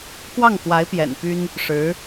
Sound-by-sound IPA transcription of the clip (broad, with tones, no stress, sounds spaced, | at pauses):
k w ɑ˥˩ ŋ k w a˧˥ ɪ̯ p j ɛ̰˨˩ n p y˥ n | ʂ ɻ̩˧˥